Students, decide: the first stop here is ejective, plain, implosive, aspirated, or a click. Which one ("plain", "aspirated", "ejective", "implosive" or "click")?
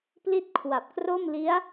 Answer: plain